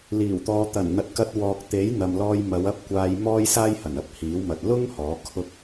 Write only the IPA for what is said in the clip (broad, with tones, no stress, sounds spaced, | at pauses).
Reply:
l iː˨˩ w t̪ ɔː˨˧ t̪ ɐ˨˩ n n̪ ɐ˨ t̚ k ɐ˧ t̚ w ɔː˨ k̚ t̪ e˨˥ j n̪ ɐ˨ m l ɔː˧ j m ɐ˨˧ w ɐ˥ p̚ kʷ aː˧ j m ɔː˥ j s aː˥ j h ɐ˨˩ n ɐ˥ p̚ h iː˨˥ w m ɐ˨ t̚ l ʊ˥ ŋ h ɔː˨˥ kʰ ʊ˥ k̚